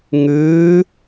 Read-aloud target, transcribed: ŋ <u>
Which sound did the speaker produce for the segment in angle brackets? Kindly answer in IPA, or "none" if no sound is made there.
ʉ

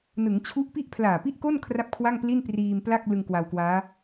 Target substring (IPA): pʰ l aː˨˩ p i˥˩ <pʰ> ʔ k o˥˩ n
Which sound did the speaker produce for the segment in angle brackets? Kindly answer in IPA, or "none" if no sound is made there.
none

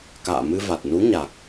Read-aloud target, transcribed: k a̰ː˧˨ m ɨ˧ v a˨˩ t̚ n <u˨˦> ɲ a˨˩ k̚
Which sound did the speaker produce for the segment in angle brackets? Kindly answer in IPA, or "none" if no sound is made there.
u˨˦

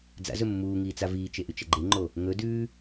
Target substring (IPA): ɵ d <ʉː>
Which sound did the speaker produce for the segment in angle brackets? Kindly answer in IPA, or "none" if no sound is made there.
ʉː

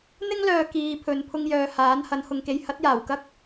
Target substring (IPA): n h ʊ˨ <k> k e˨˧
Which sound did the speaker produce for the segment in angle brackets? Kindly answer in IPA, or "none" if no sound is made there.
ŋ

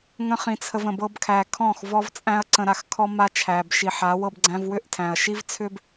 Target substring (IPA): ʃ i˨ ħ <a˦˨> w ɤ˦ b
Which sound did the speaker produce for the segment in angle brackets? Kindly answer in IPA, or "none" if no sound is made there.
a˨˦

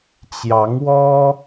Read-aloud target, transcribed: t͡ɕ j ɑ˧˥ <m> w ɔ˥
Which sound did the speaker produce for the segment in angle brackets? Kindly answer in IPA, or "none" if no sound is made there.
ŋ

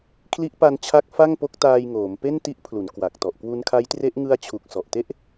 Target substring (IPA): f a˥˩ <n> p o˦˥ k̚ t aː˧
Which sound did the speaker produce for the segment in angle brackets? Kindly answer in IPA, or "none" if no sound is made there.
ŋ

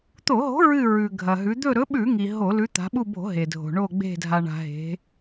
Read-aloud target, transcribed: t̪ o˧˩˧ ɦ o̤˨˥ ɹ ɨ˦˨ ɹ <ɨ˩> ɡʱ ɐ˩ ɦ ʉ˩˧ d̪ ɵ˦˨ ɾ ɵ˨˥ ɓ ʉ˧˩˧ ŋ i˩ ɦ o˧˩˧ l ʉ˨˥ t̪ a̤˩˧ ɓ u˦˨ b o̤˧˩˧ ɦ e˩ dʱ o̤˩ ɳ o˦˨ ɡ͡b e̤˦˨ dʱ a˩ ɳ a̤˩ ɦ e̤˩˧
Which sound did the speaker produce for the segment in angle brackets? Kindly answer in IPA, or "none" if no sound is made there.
ʉ˩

